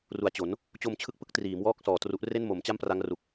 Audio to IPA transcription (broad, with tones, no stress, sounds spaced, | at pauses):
r u˨˩ a̯ t͡ɕ o˩˦ n | t͡ɕ o˧ m t͡ɕʰ ɯ˦˥ k̚ p ɯ˦˥ k̚ t r iː˩˦ m w ɔː˥˩ k̚ s ɔː˨˩ t r u˦˥ ʔ r e˥˩ n m o˩˦ m t͡ɕ a˥˩ m p r a˦˥ ŋ r u˨˩ k̚